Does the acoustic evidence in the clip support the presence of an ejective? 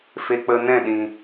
no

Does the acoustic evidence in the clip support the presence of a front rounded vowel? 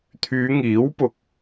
yes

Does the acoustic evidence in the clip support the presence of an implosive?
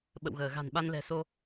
yes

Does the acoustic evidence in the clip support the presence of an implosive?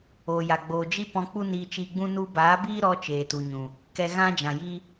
no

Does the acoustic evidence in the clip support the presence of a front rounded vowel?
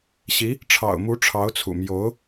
no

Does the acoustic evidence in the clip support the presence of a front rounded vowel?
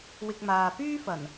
yes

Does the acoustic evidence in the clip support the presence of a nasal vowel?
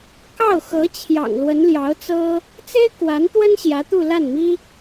no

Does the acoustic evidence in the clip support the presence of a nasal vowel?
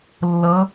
no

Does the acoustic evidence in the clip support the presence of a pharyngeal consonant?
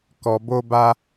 no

